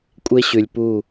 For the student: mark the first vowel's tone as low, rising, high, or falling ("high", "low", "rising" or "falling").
high